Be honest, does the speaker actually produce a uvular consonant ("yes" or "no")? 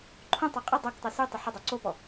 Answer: yes